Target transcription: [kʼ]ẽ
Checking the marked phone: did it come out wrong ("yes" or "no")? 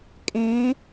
no